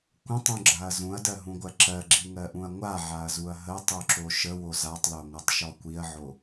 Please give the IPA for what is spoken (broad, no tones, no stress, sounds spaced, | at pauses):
kʷ ə̃ tˤ ũ ɡ͡ǁ a ɐ̯ z ũ ɐ̯ d ɜ ɦ ũ ɡʷ ɜ ǁ ɜ ɡ͡ǁ i ŋ ɜ ʔ ũ ɐ̯ ŋʷ a ʕ a ɐ̯ z u ɐ̯ ɦ ə tˤ u ǁ o ʃ ə w o z a tˤ l o ŋʷ ɜ tˤ ʃ ɔ kʷ i ɐ̯ ʕ o